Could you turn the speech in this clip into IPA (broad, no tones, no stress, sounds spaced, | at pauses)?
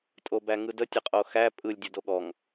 tʼ o b æ ŋ ɯ d ə tʲ ə qʼ o x æ pʼ ɯ lʲ dʲ o d o ɠ ɔ ŋ